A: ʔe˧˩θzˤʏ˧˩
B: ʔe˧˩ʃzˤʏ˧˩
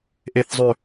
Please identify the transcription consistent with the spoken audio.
A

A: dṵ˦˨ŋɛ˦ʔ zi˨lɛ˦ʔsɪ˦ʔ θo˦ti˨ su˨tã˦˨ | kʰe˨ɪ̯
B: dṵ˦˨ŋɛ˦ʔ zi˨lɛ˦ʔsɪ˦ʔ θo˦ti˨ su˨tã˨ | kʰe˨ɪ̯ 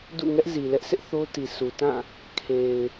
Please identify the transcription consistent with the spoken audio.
A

